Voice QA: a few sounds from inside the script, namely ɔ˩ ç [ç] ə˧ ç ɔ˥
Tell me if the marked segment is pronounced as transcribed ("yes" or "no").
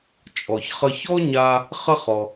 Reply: no